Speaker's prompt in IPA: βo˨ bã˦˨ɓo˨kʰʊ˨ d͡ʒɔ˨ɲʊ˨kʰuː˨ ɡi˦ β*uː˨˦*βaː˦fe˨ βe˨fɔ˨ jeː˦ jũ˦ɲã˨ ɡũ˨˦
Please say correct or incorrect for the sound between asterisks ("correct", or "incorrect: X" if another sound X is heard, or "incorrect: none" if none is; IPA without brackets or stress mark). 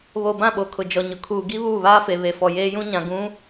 incorrect: uː˦˨